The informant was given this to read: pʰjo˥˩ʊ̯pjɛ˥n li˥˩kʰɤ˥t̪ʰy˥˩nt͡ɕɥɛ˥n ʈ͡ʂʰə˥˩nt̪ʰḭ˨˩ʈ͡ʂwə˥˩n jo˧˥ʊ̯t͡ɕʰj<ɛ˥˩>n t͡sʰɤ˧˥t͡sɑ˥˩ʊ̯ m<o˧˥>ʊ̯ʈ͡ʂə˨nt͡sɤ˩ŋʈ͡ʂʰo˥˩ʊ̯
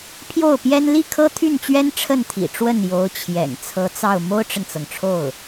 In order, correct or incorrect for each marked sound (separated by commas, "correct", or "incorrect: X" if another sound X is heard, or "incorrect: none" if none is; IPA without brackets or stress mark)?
incorrect: ɛ̰˨˩, incorrect: o˥